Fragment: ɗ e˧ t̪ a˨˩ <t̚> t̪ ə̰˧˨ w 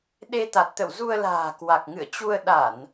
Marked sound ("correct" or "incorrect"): correct